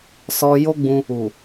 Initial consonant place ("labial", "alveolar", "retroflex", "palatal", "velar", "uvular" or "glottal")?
alveolar